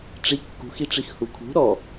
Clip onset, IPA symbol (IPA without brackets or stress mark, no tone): ʈ͡ʂ